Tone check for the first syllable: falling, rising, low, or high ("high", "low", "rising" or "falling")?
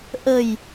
low